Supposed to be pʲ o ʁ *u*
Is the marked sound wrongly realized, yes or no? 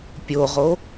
yes